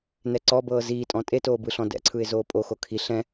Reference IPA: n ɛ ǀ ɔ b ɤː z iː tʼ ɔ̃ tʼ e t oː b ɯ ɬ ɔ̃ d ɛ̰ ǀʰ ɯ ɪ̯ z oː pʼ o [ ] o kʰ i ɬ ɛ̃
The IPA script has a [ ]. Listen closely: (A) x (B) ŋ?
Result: A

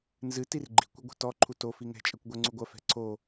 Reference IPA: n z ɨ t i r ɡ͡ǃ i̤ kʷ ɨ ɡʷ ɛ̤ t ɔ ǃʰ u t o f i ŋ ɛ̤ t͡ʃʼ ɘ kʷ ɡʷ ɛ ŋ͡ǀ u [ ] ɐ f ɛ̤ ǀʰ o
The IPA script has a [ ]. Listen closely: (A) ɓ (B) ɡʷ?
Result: B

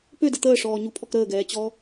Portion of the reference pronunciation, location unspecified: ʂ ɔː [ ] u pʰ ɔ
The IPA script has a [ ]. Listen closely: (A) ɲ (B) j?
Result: A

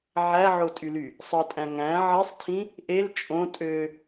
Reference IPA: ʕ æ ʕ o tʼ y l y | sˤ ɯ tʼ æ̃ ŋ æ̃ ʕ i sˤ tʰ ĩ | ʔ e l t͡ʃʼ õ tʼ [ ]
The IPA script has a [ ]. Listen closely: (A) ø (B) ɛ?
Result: A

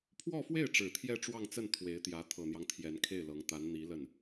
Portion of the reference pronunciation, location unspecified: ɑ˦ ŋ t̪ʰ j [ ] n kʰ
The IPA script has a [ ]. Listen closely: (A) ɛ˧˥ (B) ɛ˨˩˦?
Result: A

